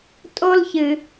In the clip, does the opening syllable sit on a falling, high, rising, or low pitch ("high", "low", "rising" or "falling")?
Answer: high